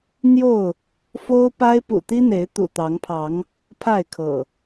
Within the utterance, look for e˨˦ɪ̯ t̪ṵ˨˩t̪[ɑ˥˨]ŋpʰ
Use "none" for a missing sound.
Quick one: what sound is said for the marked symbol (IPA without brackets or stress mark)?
ɑ˨˦